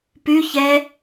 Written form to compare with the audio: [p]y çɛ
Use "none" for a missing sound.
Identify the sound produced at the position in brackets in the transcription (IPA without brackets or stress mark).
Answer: p